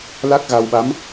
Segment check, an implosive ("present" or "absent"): present